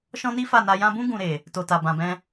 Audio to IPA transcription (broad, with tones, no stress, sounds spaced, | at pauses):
ʃ ɔ̃˦ n i˦ f a˦˨ n a˧ j ã˧ b ũ˦ ɡ ũ˧ ɾ e˨ | t o˨ t a˨ b ã˨ b ɛ̃˧